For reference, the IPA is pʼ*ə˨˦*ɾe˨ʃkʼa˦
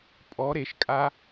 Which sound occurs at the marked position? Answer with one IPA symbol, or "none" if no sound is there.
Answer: ɔ˨˦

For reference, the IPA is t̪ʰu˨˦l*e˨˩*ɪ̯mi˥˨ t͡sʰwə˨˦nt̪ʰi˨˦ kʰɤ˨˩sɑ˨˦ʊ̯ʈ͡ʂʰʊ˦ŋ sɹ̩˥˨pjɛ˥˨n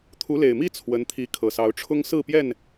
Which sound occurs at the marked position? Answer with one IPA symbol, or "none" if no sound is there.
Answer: e˨˩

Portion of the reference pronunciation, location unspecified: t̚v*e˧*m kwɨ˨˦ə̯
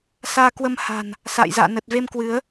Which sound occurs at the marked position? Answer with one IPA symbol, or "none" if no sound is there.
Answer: e˧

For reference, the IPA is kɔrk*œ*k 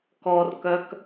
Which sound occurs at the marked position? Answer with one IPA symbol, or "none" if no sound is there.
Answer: œ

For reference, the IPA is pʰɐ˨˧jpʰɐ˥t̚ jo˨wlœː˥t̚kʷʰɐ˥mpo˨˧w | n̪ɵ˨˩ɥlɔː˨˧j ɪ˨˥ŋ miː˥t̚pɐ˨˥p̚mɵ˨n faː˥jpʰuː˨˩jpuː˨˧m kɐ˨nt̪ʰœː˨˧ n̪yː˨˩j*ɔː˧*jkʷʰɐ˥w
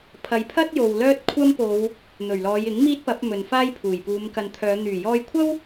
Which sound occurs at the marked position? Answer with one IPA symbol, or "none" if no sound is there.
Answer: ɔː˧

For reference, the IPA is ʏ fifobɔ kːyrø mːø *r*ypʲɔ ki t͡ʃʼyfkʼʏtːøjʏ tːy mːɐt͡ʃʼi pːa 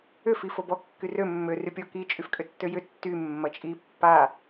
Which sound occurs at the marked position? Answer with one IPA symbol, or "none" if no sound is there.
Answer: r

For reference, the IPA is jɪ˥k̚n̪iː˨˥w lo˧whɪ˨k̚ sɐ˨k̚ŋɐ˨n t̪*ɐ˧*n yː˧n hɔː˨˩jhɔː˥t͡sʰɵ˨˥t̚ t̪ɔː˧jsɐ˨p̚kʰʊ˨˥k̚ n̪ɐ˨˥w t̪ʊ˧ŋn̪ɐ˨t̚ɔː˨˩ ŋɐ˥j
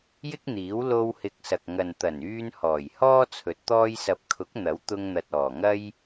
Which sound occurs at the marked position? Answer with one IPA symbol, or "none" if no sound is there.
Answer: ɐ˨˩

